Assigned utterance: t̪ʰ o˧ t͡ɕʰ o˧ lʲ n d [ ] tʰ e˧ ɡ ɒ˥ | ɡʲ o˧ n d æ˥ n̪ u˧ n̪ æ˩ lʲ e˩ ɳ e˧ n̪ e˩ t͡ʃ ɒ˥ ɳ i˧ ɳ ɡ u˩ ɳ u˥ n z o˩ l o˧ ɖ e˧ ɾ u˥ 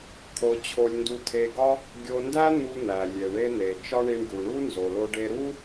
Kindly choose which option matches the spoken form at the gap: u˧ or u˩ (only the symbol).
u˧